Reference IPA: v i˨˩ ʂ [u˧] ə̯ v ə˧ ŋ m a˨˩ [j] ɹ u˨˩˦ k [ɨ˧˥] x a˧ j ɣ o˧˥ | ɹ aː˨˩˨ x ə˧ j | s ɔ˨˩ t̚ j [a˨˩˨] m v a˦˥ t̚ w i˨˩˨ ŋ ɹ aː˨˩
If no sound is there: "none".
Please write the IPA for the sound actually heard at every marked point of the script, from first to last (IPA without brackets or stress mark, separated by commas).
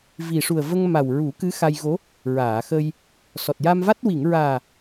u˨˩, w, ɨ˧˥, a˧